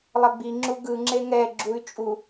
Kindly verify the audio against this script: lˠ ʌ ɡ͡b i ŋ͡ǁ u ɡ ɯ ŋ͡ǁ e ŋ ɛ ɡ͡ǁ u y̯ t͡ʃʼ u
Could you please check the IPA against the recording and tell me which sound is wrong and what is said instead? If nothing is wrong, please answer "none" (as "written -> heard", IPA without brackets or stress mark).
none